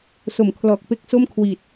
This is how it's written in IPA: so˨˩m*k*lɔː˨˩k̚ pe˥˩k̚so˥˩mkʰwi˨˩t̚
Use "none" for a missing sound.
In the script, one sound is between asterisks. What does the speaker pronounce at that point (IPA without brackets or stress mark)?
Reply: kʰ